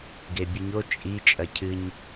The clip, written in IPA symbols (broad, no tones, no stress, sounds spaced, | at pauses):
ɡ e bʲ ɨ ɲ o t͡ʃʼ i t͡ʃʼ ɐ cʰ ɨ ɲ